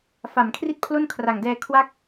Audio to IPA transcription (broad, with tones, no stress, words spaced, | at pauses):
fa˨˩mkʰri˥˩t̚pʰlo˥˩n kʰra˨˩ŋdɛː˧ kʰwa˦˥k̚